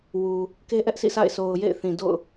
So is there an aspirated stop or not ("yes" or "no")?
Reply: no